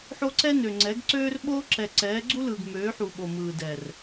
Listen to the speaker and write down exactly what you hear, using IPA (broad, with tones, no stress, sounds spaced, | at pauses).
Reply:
ħ o˦ ǀ ɛ˦ n ø˨ ŋ͡ǀ ɛ˨˦ ɡ ǀ øː˦ r ɓ oː˦ ǁ ɛ˨ ǀ ɛː˨˦ ɡ͡ǀ u˦ l ɯː˨ ɡ m øː˨˦ ħ u˨ ɓ o˨ m ɯː˨ d ɛ˨ r